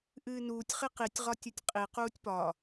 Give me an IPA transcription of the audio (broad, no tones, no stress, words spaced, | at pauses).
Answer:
ʔɨːnuːtʲ χiqitʲ ʁɒtʲɯtʲqʼi quːtʲpɒ